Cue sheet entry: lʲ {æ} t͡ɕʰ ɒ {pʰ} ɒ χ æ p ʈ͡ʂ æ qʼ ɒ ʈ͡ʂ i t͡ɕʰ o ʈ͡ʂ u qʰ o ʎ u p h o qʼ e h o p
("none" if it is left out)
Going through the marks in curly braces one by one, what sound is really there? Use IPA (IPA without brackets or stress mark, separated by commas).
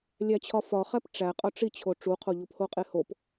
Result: æ, f